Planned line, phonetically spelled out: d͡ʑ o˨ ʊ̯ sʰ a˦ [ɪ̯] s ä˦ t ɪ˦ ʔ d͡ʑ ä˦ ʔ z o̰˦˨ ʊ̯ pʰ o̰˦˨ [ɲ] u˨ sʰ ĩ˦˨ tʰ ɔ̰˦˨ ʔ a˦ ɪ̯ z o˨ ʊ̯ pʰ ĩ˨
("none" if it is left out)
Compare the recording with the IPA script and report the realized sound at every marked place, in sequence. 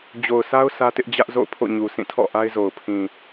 ʊ̯, ɲ

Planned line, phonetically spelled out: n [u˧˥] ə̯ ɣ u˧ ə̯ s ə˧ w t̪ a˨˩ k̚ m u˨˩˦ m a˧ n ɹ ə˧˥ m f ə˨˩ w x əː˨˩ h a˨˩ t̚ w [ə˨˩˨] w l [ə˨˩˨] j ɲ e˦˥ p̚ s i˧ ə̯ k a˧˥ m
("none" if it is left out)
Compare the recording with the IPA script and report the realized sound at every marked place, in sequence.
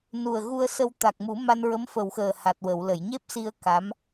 u˨˩, ə˨˩˨, ə˨˩˨

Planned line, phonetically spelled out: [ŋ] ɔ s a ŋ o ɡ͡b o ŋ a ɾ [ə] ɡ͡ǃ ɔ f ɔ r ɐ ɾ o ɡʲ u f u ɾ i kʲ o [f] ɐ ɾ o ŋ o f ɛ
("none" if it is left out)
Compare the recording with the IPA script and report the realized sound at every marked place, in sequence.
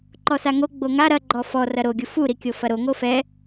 ǃ, ɐ, f

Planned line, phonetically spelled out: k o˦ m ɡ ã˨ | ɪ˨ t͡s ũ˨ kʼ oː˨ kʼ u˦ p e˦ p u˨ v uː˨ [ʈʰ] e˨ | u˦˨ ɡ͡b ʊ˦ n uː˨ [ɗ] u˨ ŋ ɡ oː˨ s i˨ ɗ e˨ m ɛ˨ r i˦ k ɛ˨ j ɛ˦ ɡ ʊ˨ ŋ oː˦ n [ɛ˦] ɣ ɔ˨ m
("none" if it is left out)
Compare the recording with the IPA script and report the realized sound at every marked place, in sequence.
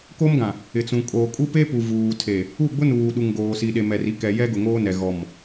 tʰ, ɗ, ɛ˨

